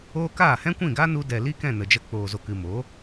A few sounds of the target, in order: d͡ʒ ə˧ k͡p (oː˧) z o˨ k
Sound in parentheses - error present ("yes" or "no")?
yes